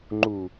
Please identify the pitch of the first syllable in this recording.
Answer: low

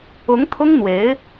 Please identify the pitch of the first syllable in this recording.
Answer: rising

